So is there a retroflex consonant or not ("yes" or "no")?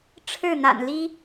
yes